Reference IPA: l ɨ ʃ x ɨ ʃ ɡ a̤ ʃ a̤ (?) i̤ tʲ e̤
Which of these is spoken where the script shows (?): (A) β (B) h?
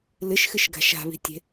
A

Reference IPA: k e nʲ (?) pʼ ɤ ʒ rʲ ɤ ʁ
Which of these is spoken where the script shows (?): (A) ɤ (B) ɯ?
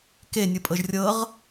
B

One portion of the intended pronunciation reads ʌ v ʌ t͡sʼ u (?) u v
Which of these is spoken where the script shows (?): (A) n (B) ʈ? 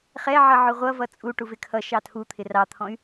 B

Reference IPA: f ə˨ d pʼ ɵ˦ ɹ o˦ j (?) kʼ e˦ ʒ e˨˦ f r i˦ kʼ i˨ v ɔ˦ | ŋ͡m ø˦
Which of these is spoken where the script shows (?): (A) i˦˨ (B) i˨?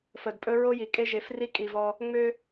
B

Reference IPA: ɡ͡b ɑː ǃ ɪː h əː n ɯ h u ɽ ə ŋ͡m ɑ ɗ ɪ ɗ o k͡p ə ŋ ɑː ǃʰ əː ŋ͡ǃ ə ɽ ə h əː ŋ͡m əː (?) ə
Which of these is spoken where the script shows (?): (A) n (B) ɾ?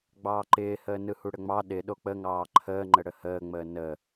A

